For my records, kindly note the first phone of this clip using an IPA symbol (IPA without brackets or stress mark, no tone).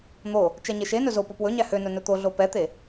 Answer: n̪